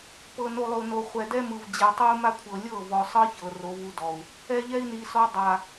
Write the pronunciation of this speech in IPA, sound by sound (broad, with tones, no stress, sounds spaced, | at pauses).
p ɤ˨ n o˨ lˠ o˨ n o˨ χʷ ɛ˨ d ɛ˦ m ɯ˨ v d͡ʑ ɛ˨ tˤ o˦ u̯ m a˦ kʷʰ ɤ˨ lʲ ɤ˦˨ v ɔ˨ sˤ ɤ˦ ç ɤ˨ r o˨˦ v u˦ d ɔ˨ u̯ | ɛ˦ ʎ ɛ˦ i̯ n i˨ s ɔ˦ dˤ a˨